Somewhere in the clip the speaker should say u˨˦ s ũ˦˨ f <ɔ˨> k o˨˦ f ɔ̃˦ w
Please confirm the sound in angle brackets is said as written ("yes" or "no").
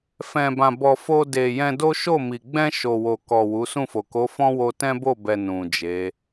no